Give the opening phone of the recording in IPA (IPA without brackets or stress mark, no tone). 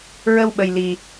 ɹ